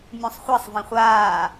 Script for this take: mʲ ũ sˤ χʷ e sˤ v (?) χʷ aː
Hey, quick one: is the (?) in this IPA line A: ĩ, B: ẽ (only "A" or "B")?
A